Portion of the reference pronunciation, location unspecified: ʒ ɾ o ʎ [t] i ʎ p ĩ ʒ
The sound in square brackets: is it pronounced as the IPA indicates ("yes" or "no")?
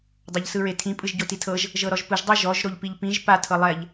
no